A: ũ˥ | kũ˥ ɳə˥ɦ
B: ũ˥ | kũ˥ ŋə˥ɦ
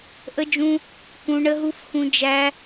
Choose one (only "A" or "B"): A